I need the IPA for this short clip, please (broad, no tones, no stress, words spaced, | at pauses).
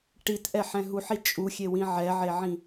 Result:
ʈitʔɛħɛ̃ ɦuħi t͡ʃʼuxʲewĩ ʕɛʕeʕĩ